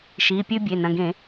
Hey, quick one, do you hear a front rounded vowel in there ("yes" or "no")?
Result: no